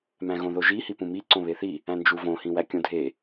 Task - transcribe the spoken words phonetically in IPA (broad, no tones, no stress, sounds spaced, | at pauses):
m æ̃ ɣ õ ð o ʒ i h i p ũ m i ǀ õ β e θ i | æ̃ n d͡ʒ u v õ h ĩ w æ kʲ õ dʱ e